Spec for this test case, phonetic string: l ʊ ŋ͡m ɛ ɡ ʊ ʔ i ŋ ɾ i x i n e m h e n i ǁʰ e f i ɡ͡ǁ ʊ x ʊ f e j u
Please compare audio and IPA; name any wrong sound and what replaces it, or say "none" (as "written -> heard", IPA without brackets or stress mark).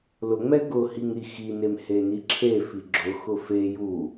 ʔ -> h